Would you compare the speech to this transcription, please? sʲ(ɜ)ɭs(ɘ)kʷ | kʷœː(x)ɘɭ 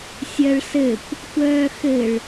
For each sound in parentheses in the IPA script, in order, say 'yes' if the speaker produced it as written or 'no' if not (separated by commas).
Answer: yes, yes, yes